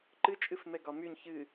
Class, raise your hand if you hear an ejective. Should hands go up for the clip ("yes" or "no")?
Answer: yes